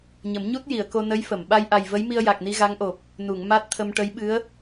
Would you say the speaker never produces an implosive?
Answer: no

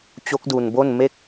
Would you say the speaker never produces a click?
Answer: yes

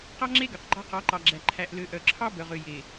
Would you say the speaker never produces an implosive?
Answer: yes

